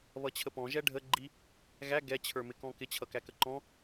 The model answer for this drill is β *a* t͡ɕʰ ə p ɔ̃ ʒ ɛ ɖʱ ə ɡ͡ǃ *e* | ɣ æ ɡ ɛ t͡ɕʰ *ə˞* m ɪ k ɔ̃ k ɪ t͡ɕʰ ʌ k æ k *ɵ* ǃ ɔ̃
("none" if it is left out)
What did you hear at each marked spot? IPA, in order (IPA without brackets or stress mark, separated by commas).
ʌ, i, ə˞, ə